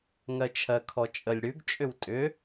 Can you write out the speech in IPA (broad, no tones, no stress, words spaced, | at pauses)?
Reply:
ŋɜt͡ʃʰɜkʰɔt͡ʃʼəlʲ ɽʉɡt͡ʃʼʏw tʼʏ